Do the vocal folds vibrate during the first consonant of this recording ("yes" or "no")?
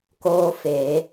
no